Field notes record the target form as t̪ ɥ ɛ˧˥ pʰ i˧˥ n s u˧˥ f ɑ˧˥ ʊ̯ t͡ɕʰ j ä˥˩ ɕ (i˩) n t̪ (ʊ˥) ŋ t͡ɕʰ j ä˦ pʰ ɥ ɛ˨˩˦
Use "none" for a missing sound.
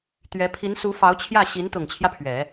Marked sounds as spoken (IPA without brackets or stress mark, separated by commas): i˧˥, ʊ˨˩